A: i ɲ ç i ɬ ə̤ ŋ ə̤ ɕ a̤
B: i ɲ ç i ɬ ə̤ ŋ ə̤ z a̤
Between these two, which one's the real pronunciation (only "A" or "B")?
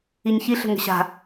A